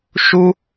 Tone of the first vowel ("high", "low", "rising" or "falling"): high